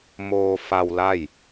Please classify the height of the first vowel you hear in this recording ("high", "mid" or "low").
mid